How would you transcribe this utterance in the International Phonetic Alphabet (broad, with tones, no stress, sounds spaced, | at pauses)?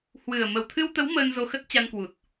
h w ɨ˨˩ ə̯ m ə˨˩ w t̪ʰ ɨ˧ w t̪ ə˨˦ w m əː˧ n z o˧ x ə˦˥ t̚ t͡ɕ a˧ n k w u˨˩ t̚